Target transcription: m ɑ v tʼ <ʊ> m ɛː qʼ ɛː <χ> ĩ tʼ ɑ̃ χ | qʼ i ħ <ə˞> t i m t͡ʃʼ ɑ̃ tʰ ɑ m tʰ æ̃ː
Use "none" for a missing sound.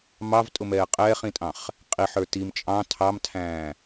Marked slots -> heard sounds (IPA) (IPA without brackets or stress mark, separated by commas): ʊ, χ, ə˞